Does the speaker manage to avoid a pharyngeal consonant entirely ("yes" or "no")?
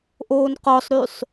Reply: yes